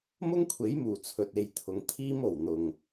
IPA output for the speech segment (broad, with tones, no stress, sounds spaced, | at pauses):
m ʊ˥ ŋ kʷʰ e˨˥ j m uː˨˩ t͡sʰ ɵ˨ t̚ e˨ j t̪ʰ ʊ˨ ŋ t̪ʰ iː˥ m o˨˩ w n̪ ʊ˨˩ ŋ